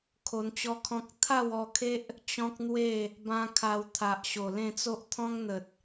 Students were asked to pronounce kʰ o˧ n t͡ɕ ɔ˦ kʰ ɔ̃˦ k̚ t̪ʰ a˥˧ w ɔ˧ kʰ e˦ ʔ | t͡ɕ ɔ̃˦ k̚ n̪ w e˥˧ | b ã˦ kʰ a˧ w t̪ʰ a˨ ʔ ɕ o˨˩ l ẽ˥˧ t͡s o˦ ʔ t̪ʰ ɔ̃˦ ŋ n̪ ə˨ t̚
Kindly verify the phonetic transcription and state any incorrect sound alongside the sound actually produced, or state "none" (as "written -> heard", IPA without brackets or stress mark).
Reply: none